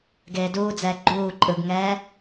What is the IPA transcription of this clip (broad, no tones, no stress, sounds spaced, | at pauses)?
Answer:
ɡ eː d uː d͡z ɛː ɡ͡ǃ uː ǃʼ ɯ ɡ ŋ ɛː